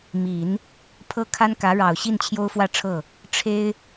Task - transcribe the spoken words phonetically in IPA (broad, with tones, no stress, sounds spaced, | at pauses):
m i˨˩˦ n | pʰ ɤ˥ kʰ a˥ n k ä˧˥ ɻ ɑ˨˩ ʊ̯ ɕ i˥˩ n t͡ɕʰ j o˥ ʊ̯ f w ä˥˧ ʈ͡ʂʰ ɤ˥˩ | ʈ͡ʂʰ e˥ ɪ̯